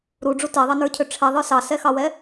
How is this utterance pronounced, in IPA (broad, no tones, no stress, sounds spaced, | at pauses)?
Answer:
ɾ u ɖ͡ʐ u t ɛ ðˤ ɑ n ə˞ cʰ ø ʈ͡ʂʰ ɛ ðˤ ə˞ s ɑ s ɛ x ɑ w ɛ